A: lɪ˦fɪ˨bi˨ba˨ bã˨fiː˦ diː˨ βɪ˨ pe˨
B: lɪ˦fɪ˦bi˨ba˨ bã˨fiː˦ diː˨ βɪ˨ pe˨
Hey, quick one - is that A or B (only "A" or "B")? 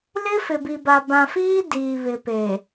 A